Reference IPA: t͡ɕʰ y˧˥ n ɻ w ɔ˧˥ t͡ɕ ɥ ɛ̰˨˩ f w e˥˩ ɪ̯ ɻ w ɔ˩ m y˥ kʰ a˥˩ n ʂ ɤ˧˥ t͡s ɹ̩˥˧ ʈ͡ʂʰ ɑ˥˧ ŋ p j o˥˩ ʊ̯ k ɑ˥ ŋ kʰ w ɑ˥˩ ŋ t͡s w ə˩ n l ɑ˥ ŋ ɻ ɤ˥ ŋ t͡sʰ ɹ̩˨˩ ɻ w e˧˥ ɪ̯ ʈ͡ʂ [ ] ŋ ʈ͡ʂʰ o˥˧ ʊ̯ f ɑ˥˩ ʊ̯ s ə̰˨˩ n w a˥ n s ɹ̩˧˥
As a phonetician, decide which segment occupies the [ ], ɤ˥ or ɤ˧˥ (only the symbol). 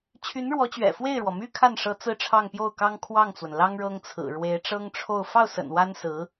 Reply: ɤ˥